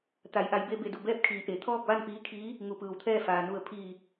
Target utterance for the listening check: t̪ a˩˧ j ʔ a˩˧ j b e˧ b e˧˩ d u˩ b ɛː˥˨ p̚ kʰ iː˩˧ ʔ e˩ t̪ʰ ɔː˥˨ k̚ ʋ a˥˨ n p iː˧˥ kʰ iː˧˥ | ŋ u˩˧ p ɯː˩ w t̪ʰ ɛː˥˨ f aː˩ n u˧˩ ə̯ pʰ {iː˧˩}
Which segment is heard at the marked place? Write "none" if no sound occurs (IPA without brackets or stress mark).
iː˧˩